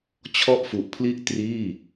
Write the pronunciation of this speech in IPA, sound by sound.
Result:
t͡ɕʰ ɔ˥˩ ʔ f u˨˩ ʔ pʰ l i˥˩ ʔ t r iː˥˩

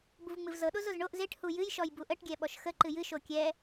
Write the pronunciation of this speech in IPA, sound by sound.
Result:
b u v ŋ͡m ɨ v z ɤ ɗ o z o z ɳ o ʔ z e ʈ h u j ɨ j ʃ ɔ j b u ʔ ə ʈ ɡʲ ɛ ɓ ɔ ʃ x ə ǃ ɨ j ɨ ʃ o kʲ ɛ

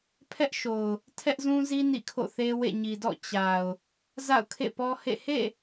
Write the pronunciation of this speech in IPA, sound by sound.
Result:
pʰ ɛ˦ ʔ ʃ o˨ ʊ̯ | tʰ ɛ˦ ʔ z ũ˦ z i˦ n ḭ˦˨ kʰ o̰˦˨ θ e˦ w ḛ˦˨ ɲ i˨ d ɔ̰˦˨ t͡ɕ a˨ ʊ̯ | z a̰˦˨ ʊ̯ kʰ ḛ˦˨ p ɔ˦ h ḛ˦˨ h ḛ˦˨

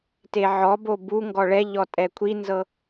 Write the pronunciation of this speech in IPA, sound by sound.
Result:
t e ʕ ɔ b o b u ŋ ɡ ɔ ɭ ɛ ʎ ɔ tʼ ɛ kʷʰ i n z ɤ

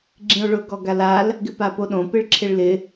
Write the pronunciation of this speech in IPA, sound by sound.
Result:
ɡ͡ǁ ĩ o̯ ɭ ʊ ɡ ɔ ɡ a l a l | ɡ ɪ p a p o ɗ õ p ɪ ɭ ǁʰ ɪ ɭ l ɪ

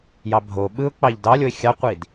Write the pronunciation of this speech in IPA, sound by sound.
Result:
j ɑ bʱ o ɓ ɯ ʊ̯ k͡p ɑ ʎ d ɑ lʲ o ɪ̯ xʲ ɑ qʷ i d

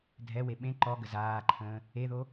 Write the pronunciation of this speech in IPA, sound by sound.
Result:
dʱ ɛ w e ɓ ẽ ǃ ɔ ɡ ə z aː ǃʰ ə̃ː | e ð o

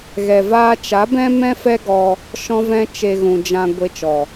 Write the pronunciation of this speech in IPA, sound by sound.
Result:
ɣ ɛ˨ v aː˧ t͡ʃ a˨˦ b ɛ̃˦ m ɛ̃˦ f ɛ˦ ɡ ɔ˧ | ʃ ɔ̃˧ v ɛ̃˧ t͡ʃ e˧ ɣ ũ˨ d͡ʒ ã˧ ɡʷ e˧ t͡ʃ ɔ˨

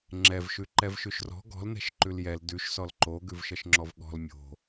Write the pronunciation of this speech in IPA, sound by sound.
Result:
ŋ͡ǁ ɛ v ʃ ʉ ǃ ɛ v ʃ ʉ ʃ r ɔ̤ ɡ ɔ̤ l n ɛ̤ ʃ ǃ ʉ l j ɛ l d ʉ ʃ s ɔ l ǃ o ɡ ʉ v ʃ ʌ ʃ ŋ͡ǁ ɔ v ɠ ɔ̤ l mʲ o̤

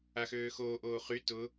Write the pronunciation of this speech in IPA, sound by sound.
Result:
a x øː x oː ʔ oː χ y t ʊ

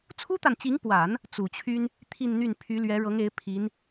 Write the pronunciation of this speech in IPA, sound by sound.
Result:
t͡sʰ u˥ t̪ a˨ n t͡ɕ i˧˥ ŋ p w a˨˩˦ n | t͡s u˨˩ t͡ɕʰ y˥ n | t̪ʰ i˥˧ n n̪ y˥˩ n pʰ y˧˥ l ɥ ɛ˧˥ ɻ ɤ˧˥ ŋ e˧˥ ɪ̯ pʰ i˧˥ n

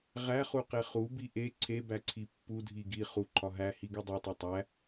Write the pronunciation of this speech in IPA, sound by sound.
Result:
ʁ æ χ u q e χ u b i ʔ e ǀʰ e b æ ǀʰ i pː u dʱ i ɡ i χ u ǃʰ ɒ ɦ æ h i ɡ u dˤ e tˤ o tˤ æ

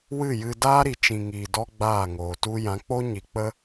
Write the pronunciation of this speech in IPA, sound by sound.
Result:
w ɨ˦˨ j ɨ˧ d aː˦ ɾ i˨ t͡ʃ ĩ˨ ŋ iː˨ d ɔ˦ ɡ͡b aː˦˨ ŋ oː˨ t u˦ j ã˨˦ k͡p o˦ ɲ i˧ k͡p ə˦

